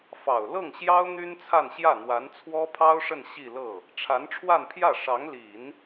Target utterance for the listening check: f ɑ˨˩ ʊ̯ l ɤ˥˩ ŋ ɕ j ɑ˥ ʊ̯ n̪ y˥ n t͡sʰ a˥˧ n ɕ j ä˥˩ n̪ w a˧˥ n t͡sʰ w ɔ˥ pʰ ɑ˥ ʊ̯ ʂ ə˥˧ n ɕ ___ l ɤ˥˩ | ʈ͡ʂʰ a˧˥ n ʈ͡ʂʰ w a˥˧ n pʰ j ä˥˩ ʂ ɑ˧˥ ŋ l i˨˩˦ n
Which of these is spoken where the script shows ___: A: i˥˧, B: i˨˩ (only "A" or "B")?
A